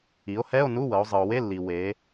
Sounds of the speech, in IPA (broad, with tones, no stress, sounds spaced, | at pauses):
i˩˧ o̯ h ɛ˧˥˧ o̯ n u˧˥˧ w ɤ˩˧ o̯ zˤ ɯ˩ o̯ w e˧˥˧ lː i˩ w e˩˧